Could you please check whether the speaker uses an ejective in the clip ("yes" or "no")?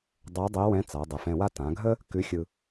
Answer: no